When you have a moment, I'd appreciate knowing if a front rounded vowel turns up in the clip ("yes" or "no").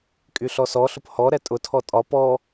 yes